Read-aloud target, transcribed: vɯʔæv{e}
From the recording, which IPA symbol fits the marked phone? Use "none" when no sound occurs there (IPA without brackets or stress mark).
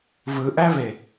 e